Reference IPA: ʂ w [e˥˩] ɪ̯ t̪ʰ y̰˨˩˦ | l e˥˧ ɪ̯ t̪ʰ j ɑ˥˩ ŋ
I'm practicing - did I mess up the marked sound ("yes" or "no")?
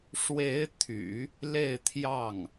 yes